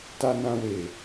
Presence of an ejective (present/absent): absent